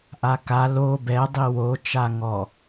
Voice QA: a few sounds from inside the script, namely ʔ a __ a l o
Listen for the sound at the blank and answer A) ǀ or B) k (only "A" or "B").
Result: B